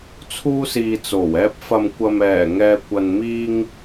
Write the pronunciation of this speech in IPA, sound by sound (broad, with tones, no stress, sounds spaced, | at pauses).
t͡sʰ uː˧ s iː˨ t͡s o˨˩ w ɛː˧ p̚ f ɐ˨ m kʷ ɐ˨ m ɛː˨˩ ŋ ɛː˨ kʷ ɐ˨ n m iː˧ ŋ